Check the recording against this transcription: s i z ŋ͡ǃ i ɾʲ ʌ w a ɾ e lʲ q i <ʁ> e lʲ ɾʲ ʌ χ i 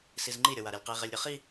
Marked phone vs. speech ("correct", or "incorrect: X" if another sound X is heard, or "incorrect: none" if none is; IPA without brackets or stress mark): correct